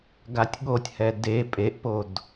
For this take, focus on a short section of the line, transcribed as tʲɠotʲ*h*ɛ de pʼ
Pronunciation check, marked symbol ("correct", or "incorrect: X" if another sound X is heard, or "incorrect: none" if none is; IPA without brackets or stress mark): correct